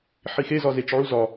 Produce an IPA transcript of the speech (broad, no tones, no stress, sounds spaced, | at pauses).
ħ i x e z ɒ z e t͡ʃ ʕ u z ɒ